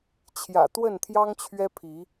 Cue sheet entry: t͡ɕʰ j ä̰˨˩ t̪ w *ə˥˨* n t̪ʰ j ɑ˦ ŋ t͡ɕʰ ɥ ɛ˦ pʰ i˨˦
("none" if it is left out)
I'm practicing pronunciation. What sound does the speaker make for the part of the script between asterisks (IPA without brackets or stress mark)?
ə˥˨